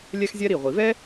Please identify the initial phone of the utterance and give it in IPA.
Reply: lʲ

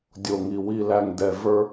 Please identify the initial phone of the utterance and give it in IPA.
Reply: dʲ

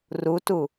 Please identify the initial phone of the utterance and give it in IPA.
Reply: r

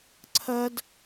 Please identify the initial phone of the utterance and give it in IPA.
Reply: ǀʰ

